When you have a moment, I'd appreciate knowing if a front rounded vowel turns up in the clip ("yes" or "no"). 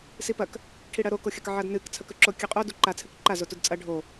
no